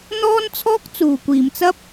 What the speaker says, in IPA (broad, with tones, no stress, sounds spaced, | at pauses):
n̪ ɔː˥ n t͡sʰ ɔː˥ k̚ t͡s uː˨˩ kʷ iː˨˩ m t͡s ɐ˥ p̚